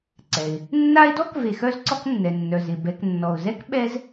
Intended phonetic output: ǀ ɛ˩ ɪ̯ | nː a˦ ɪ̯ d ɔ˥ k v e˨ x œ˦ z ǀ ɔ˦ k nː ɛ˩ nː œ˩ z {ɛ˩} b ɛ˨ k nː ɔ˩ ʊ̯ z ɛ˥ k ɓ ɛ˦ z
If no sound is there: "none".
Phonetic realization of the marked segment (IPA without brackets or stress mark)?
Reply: ɪ˩